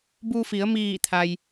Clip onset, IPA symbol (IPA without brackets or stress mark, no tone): b